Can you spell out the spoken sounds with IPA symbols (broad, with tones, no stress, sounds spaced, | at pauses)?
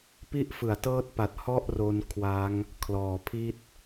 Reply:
p i˦˥ ʔ f ɯ˩˦ a̯ t ɤː˦˥ t̚ p a˨˩ t̚ h ɔ˥˩ ʔ r o˧ n kʰ w a˦˥ ŋ | kʰ l ɔː˩˦ pʰ i˦˥ t̚